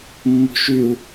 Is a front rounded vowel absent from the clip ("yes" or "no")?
no